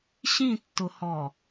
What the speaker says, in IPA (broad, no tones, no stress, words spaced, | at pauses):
ɕĩtːʊhɔ